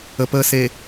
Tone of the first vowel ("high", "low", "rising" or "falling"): low